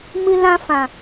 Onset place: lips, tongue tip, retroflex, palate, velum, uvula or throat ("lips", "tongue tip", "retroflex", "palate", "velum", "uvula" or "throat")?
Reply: lips